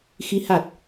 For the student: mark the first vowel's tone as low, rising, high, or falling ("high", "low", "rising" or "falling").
rising